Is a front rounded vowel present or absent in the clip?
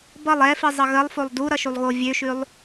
present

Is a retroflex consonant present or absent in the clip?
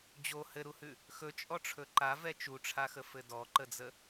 present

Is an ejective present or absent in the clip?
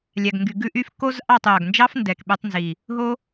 absent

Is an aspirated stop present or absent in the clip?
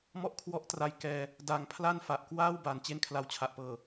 present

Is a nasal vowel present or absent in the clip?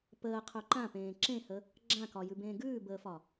present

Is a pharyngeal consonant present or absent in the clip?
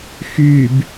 absent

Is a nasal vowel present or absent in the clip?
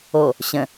present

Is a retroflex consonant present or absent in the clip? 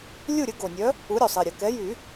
absent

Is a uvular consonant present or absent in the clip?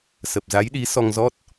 absent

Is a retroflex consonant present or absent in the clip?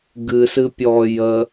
absent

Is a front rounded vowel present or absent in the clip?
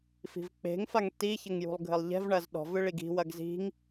absent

